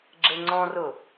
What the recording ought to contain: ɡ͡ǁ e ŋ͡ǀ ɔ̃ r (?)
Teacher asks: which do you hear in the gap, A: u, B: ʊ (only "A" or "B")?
B